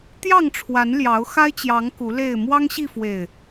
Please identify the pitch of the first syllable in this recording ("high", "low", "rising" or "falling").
falling